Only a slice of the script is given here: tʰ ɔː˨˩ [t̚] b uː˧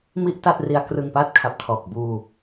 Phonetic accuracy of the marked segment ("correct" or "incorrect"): incorrect